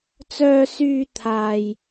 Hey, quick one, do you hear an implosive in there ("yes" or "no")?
no